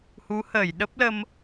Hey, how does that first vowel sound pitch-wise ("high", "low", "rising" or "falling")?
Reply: rising